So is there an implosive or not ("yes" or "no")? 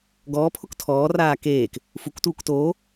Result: no